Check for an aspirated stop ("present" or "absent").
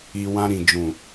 absent